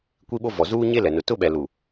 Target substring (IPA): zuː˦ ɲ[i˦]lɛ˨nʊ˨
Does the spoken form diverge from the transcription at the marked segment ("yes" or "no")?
yes